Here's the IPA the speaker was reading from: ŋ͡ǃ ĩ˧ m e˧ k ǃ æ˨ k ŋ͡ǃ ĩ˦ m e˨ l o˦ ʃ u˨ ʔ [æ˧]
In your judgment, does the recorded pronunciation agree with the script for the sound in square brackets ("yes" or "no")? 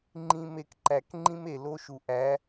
no